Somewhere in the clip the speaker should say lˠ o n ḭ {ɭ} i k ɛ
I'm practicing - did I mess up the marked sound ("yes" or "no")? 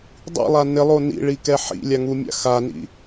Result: no